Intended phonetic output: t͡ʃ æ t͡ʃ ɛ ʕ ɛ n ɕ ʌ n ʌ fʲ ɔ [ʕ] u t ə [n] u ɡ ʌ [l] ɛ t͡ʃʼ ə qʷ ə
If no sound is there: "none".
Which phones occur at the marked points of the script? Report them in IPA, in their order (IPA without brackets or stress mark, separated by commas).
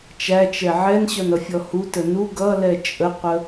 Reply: h, n, l